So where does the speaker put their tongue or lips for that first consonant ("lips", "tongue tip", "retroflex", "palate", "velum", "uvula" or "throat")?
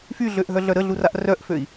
lips